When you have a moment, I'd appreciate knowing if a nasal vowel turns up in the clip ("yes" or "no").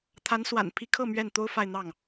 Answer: no